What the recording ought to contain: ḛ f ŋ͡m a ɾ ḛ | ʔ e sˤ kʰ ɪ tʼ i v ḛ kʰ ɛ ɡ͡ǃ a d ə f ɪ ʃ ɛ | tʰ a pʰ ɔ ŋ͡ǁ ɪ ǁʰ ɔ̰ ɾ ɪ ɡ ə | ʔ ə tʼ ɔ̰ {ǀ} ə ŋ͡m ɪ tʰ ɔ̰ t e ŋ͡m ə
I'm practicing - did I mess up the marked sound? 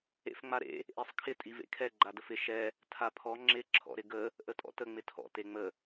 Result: yes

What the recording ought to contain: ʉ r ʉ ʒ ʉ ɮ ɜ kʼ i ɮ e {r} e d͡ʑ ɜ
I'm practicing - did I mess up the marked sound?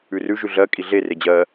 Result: no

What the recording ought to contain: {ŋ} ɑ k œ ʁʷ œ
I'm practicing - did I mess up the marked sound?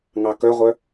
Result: no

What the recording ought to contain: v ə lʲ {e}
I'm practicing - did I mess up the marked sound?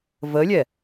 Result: yes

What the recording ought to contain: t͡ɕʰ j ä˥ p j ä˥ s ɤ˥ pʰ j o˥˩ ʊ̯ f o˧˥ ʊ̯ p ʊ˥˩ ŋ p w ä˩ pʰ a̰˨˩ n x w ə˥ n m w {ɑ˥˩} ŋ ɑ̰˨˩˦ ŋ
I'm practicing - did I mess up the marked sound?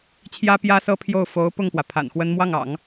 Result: no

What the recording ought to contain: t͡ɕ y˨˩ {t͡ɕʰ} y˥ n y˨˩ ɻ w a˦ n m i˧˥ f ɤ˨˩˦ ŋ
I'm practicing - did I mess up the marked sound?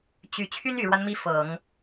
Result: no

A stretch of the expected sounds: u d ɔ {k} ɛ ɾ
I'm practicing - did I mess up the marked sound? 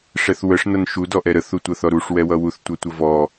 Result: yes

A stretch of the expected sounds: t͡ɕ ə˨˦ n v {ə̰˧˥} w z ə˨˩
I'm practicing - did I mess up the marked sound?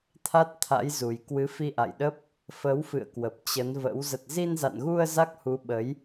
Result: no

